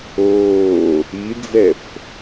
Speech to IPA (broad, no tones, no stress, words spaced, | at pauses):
oː | id͡zɛf